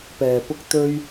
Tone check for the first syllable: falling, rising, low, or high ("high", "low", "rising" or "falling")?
low